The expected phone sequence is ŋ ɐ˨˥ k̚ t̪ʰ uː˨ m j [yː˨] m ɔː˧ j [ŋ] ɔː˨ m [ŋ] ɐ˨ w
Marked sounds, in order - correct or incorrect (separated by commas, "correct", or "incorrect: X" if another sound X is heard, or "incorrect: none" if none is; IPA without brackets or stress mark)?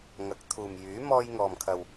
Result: incorrect: yː˨˥, correct, incorrect: kʰ